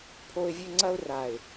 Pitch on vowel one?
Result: high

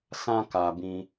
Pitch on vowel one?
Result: high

